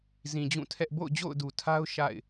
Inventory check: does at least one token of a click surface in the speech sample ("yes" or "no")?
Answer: no